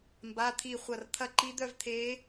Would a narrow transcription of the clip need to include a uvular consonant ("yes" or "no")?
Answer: yes